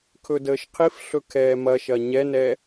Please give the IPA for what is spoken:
kʰɵdəːʃqʰif ɬɵkʰɛːmɐʃɐ ɲɛnɛ

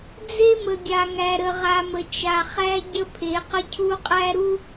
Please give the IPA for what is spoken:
d͡ze˦mə˨ ɡʲa˨ŋæ˨ɾə˨ ʁa˨mə˨ t͡ʃa˨χæ˦ ɟə˦pʰe˨˦qə˦cʰu˦ qʼæ˦ɾu˦

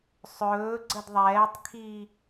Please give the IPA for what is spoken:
sˤɵː ɡ͡ǀədðˤɛːtˤkʰiː

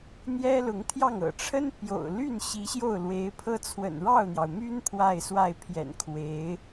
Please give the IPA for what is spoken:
n̪jɛ˥lʊ˧˥ŋt̪ʰjɑ˥˩ŋ ɤ̰˨˩ʈ͡ʂʰə˥n pjo̰˨˩ʊ̯ly˥˩nɕi˧˥ ɕjo˥˩ʊ̯lwe˧˥ɪ̯pʰɤ˥t͡sʰwə̰˨˩n ɻɑ˥˩ʊ̯n̪jɑ˩ʊ̯my˥n pʰwa˥˧ɪ̯swa˥˩ɪ̯ pʰjɛ̰˨˩nkʰwe˧˥ɪ̯

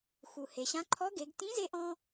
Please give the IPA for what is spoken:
xu˩he˩ɕã˧˥ ǃʰɔ˧˥ɡe˩˧ɡ tĩ˧˥ze˧ʔɔ̃˧

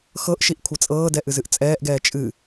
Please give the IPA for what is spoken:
xɤʔʃiʔ kʷʰɤt͡sʼɤːdɛ ʔɨzɨʔt͡sʼɛːʔɡɛː t͡ʃʼɨ

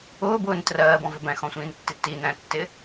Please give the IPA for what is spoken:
ʊːbʊːn trɜːbɔ̃vɪ bæ̃xɔ̃sʷĩːntːi tinæ̃tːɪ

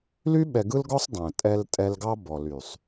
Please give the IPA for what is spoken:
ly˦ɓɛ˨ɡɯ˦lɡɔ˦sˤ dˤɛ̃˨tʼɛ˦ltʼɛ˦l ɡɑ˦bɔ˨ly˨sˤ

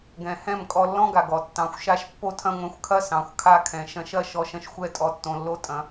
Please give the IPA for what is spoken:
ɡɛ̃˨ hɛ̃˦˨mkʼɔ˧lːɔ̃˦ɡa˨ɡ ɔ˨tːɑ̃˨xʷʃa˧ʃ pːo˦tʰɐ̃˦ŋʷɛ̃˧xʷkʰɐ˦ sɑ̃˨xʷkʰa˧kʰɛ̃˨ ʃɐ̃˧ʃɐ˦˨ ʃɔ˧ʃɐ̃˦ʃ xʷɛ˦˨tʼɔ˨tːõ˨ lːo˦tʼɐ̃˨˦

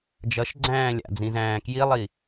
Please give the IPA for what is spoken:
d͡ʒʌʃɡ͡ǀæ̃ː lʲa̰d͡zĩzæ̃ː kjilˠi

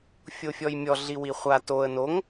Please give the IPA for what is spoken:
fʲofʲɔjmʲɔ ɮiwiχʷa toə̯ noŋ

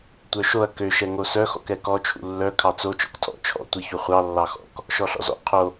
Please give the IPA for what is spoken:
tʷœʃoɐ̯ køʃɛ ŋosœxɔ̰kɛ kɔt͡ʃʰṵ lːœ kʰɑt͡so t͡ʃɔ̰ktʰɔ̰ t͡ʃʰɔ̰tʷi çuχʷɑ lːɑxɔ̰k | ʃɔɬɔ̰zɔ̰ qʰo

